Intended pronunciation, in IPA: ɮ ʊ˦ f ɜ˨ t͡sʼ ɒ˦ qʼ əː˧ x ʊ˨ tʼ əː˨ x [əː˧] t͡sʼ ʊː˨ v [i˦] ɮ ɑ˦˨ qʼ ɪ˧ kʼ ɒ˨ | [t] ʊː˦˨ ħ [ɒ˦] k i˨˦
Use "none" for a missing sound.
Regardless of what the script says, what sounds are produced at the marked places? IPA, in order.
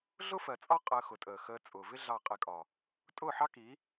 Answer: əː˧, ɪ˦, tʼ, ɑ˦

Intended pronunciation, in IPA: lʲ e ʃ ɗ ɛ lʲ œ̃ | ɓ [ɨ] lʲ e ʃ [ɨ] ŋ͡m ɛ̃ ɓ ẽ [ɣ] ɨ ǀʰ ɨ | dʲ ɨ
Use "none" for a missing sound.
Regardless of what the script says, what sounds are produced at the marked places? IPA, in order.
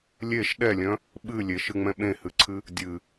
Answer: ɨ, ɨ, h

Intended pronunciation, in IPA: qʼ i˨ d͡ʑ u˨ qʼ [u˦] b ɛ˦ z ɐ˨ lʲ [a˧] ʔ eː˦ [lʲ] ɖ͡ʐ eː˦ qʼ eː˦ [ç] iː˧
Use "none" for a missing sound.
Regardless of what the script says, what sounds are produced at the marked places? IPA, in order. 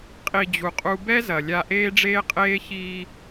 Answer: u˧, a˧, none, ç

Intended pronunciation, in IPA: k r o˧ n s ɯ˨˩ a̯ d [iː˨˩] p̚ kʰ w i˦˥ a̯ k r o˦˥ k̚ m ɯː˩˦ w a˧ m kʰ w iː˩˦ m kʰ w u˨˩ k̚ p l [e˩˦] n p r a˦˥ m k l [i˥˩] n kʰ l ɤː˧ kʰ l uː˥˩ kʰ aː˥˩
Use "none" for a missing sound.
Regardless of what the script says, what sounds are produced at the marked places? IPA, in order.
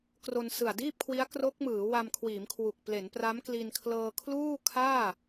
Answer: iː˥˩, e˩˦, i˧

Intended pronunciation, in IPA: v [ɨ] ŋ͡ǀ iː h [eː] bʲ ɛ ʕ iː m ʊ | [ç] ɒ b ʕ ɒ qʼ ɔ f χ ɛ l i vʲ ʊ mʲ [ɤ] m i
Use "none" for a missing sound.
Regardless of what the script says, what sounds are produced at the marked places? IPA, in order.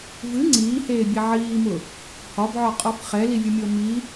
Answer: ɨ, eː, h, ɤ

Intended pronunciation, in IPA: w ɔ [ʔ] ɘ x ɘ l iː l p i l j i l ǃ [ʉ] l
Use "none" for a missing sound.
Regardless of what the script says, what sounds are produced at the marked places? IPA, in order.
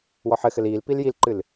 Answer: ħ, ɨ

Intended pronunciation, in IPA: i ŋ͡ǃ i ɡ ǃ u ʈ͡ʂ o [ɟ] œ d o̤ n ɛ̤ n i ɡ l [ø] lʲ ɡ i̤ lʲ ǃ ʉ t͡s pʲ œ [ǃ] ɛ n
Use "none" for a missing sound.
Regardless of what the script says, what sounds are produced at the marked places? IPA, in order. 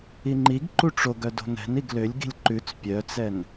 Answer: ɡ, ø, t͡s

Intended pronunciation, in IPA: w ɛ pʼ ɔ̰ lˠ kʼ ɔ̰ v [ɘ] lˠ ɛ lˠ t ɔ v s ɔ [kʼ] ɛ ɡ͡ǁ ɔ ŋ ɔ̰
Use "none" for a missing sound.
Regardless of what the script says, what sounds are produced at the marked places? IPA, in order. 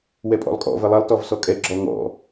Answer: ɘ, kʼ

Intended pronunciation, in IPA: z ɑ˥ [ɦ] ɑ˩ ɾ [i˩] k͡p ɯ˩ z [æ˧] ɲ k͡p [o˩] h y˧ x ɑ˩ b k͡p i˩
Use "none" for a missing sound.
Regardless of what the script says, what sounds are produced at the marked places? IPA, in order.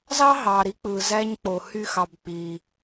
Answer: ɦ, i˧, æ˧, o˩

